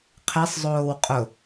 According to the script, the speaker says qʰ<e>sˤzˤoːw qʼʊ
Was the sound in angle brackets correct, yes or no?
yes